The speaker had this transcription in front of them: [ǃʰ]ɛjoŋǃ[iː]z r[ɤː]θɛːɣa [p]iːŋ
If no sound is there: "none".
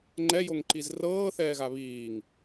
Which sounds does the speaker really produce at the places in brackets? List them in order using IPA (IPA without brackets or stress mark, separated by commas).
ŋ͡ǃ, i, ɤː, β